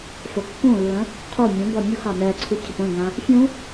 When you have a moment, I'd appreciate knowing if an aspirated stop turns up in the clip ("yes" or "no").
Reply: yes